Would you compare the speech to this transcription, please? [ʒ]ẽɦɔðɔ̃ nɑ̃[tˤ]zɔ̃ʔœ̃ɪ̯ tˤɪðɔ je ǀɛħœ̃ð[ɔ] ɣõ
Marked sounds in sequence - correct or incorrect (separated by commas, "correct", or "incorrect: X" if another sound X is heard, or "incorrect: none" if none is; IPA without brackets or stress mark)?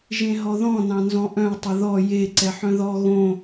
correct, incorrect: n, correct